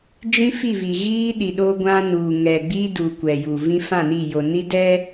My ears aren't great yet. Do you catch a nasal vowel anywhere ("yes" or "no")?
yes